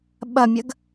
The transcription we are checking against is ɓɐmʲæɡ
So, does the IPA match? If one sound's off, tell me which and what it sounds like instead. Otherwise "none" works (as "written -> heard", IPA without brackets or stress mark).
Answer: æ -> ɐ